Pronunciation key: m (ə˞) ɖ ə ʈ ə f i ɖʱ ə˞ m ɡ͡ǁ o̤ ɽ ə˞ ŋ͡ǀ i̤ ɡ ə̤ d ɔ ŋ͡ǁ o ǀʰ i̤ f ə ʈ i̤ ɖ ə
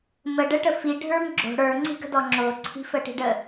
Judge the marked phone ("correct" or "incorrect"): incorrect